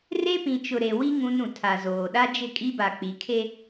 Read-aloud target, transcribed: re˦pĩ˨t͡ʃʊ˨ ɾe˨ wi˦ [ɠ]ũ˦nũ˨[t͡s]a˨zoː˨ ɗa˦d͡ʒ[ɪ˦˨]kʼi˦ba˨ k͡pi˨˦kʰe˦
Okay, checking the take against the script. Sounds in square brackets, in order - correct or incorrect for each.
incorrect, incorrect, correct

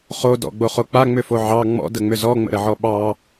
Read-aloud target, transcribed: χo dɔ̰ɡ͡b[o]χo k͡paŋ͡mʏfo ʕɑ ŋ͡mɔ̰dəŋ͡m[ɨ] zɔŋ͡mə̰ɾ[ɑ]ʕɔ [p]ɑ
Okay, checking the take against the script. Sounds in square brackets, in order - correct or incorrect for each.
correct, incorrect, incorrect, incorrect

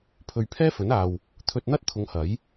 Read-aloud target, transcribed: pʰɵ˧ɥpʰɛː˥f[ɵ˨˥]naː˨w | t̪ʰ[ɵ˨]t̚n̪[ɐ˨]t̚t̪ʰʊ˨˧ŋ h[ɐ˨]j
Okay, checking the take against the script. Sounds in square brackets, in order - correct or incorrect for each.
correct, incorrect, incorrect, incorrect

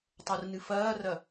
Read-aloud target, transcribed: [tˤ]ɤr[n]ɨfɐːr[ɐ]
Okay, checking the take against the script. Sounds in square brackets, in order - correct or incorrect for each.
correct, correct, correct

